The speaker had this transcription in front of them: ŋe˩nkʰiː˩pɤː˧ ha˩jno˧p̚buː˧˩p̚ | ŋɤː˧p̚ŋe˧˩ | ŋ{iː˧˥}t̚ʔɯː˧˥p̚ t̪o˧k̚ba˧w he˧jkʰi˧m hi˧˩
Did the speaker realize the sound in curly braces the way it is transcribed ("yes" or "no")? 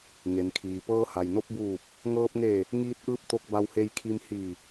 yes